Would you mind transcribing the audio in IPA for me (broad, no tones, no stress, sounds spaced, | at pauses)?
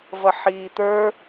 v ʌ ħ iː t̪ ə˞